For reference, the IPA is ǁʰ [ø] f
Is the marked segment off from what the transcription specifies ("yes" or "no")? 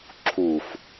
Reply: yes